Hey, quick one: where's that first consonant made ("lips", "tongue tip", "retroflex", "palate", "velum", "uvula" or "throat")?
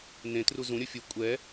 tongue tip